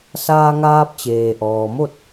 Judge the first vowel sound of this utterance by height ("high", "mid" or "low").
low